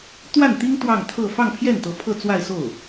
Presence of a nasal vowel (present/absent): absent